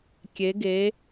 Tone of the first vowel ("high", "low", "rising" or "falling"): rising